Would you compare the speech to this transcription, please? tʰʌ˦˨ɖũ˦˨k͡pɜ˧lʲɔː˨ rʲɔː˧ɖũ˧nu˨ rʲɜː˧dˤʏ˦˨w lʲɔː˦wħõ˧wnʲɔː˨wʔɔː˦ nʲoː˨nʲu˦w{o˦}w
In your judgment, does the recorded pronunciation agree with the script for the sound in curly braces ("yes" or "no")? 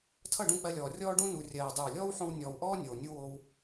yes